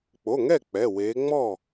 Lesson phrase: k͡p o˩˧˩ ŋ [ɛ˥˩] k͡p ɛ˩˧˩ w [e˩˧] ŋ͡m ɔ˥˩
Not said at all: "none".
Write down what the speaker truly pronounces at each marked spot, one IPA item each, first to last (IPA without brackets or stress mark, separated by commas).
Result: ɛ˥˩, e˩˧